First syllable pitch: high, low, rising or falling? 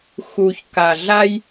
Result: low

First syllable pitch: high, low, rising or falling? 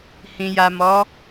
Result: low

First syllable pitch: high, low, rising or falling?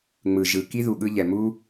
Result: low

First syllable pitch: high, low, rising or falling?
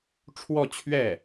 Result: falling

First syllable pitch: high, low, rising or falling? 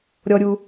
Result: high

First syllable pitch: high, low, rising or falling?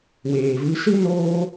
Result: low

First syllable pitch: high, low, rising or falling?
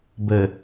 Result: low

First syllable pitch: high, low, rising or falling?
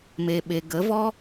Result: low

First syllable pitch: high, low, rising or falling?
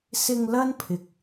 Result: low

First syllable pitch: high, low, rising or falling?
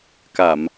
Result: low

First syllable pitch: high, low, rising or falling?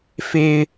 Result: high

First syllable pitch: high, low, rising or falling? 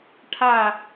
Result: falling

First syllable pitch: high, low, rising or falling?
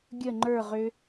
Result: falling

